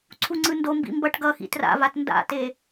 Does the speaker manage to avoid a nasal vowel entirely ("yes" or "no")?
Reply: yes